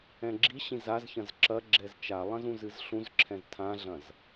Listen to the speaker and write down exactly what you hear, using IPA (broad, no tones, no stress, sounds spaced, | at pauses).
ɛ̃ ɡ͡ǁ i ɕ ĩ z a z ç ɐ̃ z ǁ ɐ ɡ͡ǁ ɛ z t͡ʃ a lˠ ɐ̃ z ũ z ɨ z ɬ ũ z ǁʰ ɛ̃ z tʰ ã ɮ ɐ̃ z